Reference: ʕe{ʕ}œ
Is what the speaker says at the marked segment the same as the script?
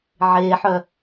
no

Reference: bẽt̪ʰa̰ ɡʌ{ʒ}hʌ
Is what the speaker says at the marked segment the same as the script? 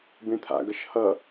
no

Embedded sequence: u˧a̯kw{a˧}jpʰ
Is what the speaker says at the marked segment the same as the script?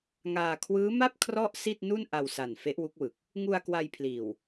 yes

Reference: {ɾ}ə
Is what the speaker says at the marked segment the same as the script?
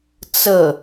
no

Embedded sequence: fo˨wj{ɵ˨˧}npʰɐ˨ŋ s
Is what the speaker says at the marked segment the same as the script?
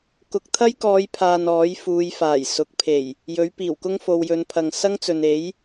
yes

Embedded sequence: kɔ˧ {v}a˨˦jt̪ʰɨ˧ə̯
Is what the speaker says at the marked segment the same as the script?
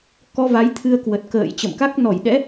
yes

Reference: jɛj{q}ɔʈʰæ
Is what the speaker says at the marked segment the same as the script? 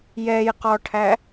yes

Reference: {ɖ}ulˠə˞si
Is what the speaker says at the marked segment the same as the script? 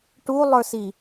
no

